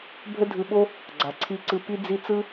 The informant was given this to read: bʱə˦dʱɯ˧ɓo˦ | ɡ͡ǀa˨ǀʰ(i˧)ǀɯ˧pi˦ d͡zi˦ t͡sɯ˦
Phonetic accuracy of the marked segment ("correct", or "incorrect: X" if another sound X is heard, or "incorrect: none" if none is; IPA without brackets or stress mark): correct